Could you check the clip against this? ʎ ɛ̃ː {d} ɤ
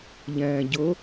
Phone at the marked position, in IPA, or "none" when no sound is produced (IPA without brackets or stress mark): ɟ